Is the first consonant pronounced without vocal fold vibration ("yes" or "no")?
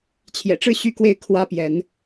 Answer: yes